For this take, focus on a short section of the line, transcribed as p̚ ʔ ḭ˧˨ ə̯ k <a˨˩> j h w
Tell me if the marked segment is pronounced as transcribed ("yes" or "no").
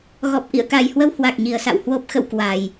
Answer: yes